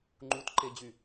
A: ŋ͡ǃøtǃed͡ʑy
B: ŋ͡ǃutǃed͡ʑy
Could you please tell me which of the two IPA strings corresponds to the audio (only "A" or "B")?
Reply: B